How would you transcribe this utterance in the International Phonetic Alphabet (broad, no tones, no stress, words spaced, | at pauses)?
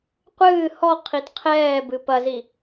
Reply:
qʷɨː hɔ qʰitqʰɛː bɨpɐzi